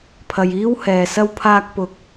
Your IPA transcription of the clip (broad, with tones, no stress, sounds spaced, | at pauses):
pʰ ɐ˨ j iː˥ w h ɛː˨ s ɐ˥ w pʰ aː˥ k̚ p ʊ˧ k̚